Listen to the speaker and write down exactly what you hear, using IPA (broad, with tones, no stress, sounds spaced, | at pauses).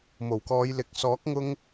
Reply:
m o˨˩ w k ɔː˨˧ j l ɪ˨˥ k̚ s ɔː˨˥ k̚ ŋ ʊ˧ ŋ